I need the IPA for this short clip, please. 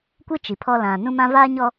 kʷɪ˦ t͡ʃi˨pʰɔ˦ lã˨ nũ˦mã˦vaː˦ ɲɔ˦

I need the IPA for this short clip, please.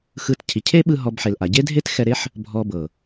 xɯ˧tcʰi˨ cʰe˦ɓɯ˧ ɦɔ˧bħe˨l ʔa˨ ɟe˦dʱe˦txɛ˧ɾe˦ħ | bʱɔ˧bɤ˨

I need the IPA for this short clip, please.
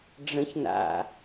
ɖ͡ʐə̃ç na̰

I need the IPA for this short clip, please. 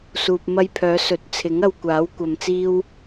suː˨p̚mɐ˧jpʰœː˨˧sɵ˨˥t̚ t͡sʰɪ˨˥ŋɐ˧wkʷaː˨˥w kʷɐ˧mt͡siː˥w

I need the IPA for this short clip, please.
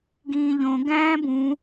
ɡĩːʎõ ɡæ̃ːbũ

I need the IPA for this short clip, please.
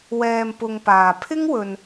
wɛː˨m pʊ˧ŋpaː˨ pʰɪ˥ŋwɵ˨n

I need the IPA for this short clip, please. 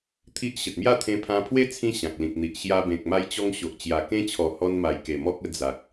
t̪ʰi˦ʔ ɕə˨t̚mja˥˧ t̪ʰẽ˧pʰã˧pʰwe˦ t͡sʰĩ˦ɕã˨k̚lĩ˨k̚n̪i˨ʔ ɕja˧ bẽ˨k̚ ma˧jt͡ɕɔ˧ŋ ɕo˨ʔt͡ɕja˨˩ kẽ˧t͡ɕʰɔ˨˩ hɔ˧nma˨˩jke˨˩ mɔ˦k̚ə˥˧d͡za˨k̚

